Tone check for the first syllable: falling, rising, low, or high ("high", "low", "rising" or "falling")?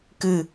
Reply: falling